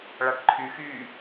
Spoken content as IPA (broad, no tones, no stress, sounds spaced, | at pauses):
ɭ a ʈ ǃʰ y x yː